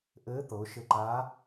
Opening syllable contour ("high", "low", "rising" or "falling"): rising